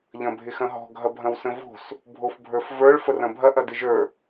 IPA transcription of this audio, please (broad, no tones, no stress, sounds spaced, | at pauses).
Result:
ʎ ɐ̃ bʱ ɪ x ɐ̃ ɦ ɔ̤ ɡʱ ɐ bʱ ɐ̃ w s ə̃ v o̤ s | bʱ o f bʱ ə˞ f v ə˞ ɭ f ə r ɐ̃ bʱ ɐ ʔ ɐ d ɪ ʒ ə˞